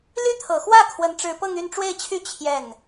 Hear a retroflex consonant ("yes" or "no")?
yes